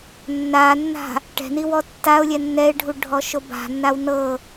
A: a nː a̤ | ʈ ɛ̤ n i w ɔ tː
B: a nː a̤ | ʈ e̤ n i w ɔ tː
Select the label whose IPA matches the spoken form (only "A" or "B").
A